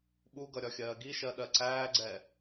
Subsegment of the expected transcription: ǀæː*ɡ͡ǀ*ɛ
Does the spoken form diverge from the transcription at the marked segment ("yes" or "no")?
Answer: no